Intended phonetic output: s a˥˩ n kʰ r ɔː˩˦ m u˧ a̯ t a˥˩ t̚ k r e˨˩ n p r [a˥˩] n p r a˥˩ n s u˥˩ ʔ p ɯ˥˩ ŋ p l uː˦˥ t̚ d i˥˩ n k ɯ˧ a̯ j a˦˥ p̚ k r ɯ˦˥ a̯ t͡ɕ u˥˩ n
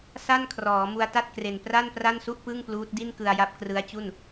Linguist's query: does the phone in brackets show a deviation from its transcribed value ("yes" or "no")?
no